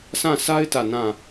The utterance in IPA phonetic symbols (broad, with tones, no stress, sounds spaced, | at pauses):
s ã˦˨ sʰ a˦ ɪ̯ t ä˦˨ n ã˦˨